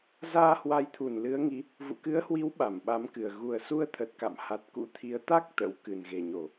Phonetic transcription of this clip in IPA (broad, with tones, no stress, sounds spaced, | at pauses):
z aː˧ h w a˨˦ j t̪ʰ u˧˩ n l ɨ˨˦ ə̯ ŋ i˨˦ | v ṵ˧˨ k ɨ˨˦ ə̯ h w i˨˦ w ɓ a˧˩ m ɓ a˨˦ m k ɨ˨˩ ə̯ ɣ u˨˩ ə̯ s u˧ ə̯ t̪ʰ ə˨˩ t̚ k a̰˧˨ m h a˨˩ t̚ k ṵ˧˥ t̪ʰ i˨˦ ə̯ t̪ a˦˥ k̚ t̪ ə̰˧˥ w k ɨ˨˩ n ɣ e˨˩ ɲ o˧˩˨